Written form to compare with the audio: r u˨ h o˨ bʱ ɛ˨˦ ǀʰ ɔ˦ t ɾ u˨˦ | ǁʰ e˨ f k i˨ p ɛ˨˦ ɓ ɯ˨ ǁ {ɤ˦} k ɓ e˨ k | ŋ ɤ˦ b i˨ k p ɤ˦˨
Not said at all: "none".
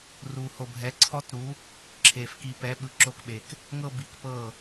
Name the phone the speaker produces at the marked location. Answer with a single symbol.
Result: o˦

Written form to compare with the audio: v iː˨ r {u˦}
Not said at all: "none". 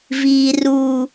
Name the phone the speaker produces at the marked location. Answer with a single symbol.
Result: u˨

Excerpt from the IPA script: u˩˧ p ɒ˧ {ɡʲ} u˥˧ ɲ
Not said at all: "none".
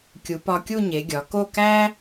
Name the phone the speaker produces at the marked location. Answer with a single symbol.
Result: kʲ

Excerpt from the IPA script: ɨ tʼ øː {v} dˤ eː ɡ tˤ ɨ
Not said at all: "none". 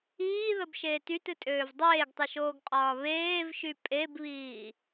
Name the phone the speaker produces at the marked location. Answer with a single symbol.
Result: v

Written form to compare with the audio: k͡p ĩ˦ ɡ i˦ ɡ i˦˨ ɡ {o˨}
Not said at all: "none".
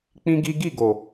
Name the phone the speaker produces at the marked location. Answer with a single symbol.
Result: o˨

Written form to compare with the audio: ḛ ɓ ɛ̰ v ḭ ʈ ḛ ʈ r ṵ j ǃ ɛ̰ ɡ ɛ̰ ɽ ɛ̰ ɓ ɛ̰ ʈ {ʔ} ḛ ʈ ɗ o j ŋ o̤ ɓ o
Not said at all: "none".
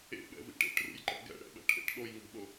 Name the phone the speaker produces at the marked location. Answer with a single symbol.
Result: ʔ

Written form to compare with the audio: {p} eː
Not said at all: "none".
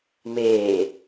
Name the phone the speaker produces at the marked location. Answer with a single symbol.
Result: m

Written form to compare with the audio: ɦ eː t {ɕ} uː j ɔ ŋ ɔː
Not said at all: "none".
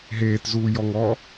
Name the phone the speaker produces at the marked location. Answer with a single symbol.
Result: z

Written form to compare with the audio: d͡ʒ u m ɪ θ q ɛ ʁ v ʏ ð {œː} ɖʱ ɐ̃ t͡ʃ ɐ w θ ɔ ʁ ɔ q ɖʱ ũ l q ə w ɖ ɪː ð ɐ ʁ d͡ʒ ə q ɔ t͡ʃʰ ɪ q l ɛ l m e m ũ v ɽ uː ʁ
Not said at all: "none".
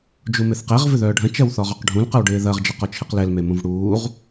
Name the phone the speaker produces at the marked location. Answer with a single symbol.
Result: œː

